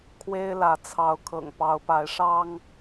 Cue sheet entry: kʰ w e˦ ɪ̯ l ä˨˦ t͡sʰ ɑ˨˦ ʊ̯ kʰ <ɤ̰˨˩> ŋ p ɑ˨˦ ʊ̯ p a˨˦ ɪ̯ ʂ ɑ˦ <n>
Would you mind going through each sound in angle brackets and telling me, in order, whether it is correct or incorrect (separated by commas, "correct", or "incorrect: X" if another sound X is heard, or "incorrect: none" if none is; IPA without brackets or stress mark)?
correct, incorrect: ŋ